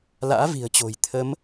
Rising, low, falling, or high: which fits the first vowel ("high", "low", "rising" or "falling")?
rising